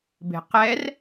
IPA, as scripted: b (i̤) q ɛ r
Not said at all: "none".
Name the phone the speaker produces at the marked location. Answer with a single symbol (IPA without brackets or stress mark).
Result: e̤